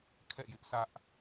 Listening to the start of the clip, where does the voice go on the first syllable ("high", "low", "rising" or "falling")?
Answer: falling